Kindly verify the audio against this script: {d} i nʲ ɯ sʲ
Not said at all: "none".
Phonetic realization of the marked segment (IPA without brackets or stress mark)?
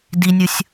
d